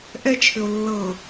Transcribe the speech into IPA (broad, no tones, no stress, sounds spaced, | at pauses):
ʔ ɛ t͡ʃʰ ʏ o̯ lː ɤ